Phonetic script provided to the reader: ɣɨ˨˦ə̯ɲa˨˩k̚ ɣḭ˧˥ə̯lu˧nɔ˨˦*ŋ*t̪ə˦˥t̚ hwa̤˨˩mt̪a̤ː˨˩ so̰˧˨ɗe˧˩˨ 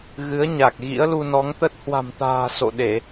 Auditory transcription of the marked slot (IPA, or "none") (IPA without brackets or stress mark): ŋ